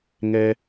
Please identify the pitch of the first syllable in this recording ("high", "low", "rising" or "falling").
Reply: high